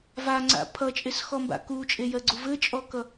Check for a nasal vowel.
absent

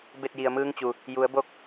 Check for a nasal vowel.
absent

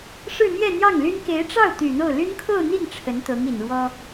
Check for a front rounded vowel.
present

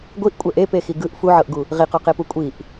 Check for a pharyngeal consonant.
present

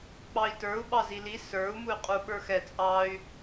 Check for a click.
absent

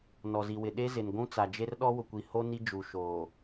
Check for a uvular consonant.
absent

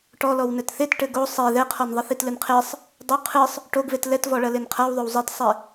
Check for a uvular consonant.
present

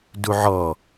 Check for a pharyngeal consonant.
present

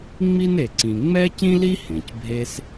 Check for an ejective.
absent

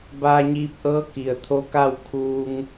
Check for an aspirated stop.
present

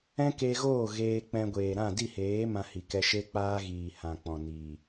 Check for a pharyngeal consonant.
absent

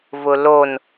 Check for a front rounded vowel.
absent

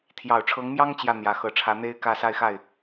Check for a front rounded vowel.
absent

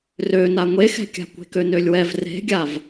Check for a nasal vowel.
absent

